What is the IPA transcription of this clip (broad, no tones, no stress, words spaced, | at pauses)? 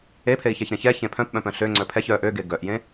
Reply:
epʰei̯çɛçɾẽ çɛ çẽpʰœ̃pɓœ̃pœ̃ ɬø ŋ͡ǀœpʰɛç œ ʔøɡe ɡœʔjẽ